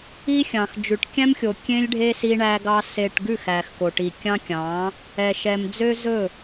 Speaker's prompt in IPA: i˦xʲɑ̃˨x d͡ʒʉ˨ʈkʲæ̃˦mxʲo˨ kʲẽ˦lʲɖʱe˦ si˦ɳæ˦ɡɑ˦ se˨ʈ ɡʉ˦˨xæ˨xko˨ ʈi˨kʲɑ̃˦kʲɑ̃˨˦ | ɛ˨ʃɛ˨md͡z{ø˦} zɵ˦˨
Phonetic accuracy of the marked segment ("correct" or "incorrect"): correct